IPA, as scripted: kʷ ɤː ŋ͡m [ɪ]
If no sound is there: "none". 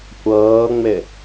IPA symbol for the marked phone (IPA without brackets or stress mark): ɪ